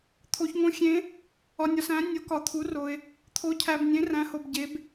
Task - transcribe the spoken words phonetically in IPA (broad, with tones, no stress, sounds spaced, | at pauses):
t̪ʰ o˨ ç ŋ õ˨˦ xʲ ẽ˨˦ | ɒ˨ nʲ ɒ˨ s æ̃˨˦ nʲ o˨˦ k ɒ˨ t̪ʰ u˨˦ r o˨ ɪ̯ | t̪ʰ o˨˦ cʰ æ˨ b nʲ ẽ˨˦ r æ̃˨˦ h o˨ b ɟ e˨˦ b